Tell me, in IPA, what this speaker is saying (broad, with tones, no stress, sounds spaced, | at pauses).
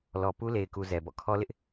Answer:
l ɔ˨ p u˦ l e˨ ɪ̯ k u˨ z ɛ˨ b ɔ̰˦˨ kʰ ɔ˦ l ɪ˦ ʔ